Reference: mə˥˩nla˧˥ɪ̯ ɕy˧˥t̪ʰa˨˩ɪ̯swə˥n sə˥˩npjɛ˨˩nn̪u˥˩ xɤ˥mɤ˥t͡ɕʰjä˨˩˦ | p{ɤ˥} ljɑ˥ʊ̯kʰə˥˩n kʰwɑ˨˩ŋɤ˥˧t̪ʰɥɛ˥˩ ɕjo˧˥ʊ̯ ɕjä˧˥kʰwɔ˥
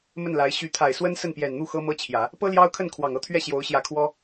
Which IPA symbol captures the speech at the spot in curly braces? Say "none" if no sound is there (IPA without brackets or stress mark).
ɤ˥